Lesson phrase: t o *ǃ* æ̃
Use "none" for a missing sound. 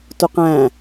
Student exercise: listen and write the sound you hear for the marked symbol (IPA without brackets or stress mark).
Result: q